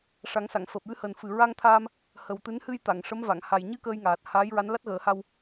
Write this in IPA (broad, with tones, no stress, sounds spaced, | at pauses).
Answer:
ʂ a˨˩˦ ŋ s a˨˩˨ ŋ f əː˨˩ p̚ j ɨ˧ h əː˨˩ n f ɨ˨˩ ɹ a˧ ŋ t̪ʰ aː˧ m | h ə˨˩ w t̪ ɨ˧˥ n h ɨ˧ j t̪ a˨˩˨ ŋ ʂ ə˧˥ m v a˨˩˨ ŋ h a˨˩ j ɲ ɨ˧ k əː˧ j ŋ aː˨˩ t̚ h aː˧˥ j ɹ a˧˥ n l a˦˥ t̚ ɣ əː˨˩˦ h a˧ w